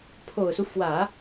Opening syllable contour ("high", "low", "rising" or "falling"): low